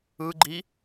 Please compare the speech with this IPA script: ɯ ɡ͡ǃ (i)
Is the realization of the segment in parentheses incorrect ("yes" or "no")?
no